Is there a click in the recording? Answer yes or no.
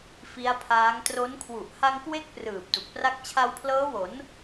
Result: no